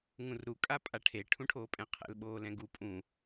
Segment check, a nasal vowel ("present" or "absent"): present